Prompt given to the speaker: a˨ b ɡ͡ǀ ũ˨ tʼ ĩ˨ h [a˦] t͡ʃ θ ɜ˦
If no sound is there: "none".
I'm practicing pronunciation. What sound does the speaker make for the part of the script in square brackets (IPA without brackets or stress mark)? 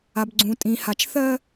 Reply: a˨